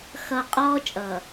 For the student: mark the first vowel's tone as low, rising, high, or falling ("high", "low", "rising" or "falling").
low